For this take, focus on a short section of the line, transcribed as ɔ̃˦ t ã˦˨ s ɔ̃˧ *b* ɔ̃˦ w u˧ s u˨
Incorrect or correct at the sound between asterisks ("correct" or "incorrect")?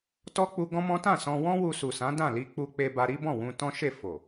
incorrect